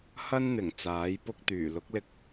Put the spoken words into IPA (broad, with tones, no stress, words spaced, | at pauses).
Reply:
hɐ˥nn̪ɪ˨˩ŋ t͡saː˨˥jpʊ˥k̚t̪yː˨˩ lʊ˨˥k̚lɪ˧k̚